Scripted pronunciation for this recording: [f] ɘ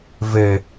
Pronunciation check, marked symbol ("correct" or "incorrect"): incorrect